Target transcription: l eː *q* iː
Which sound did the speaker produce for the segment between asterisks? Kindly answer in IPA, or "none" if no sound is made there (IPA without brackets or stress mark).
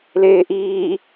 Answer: ʔ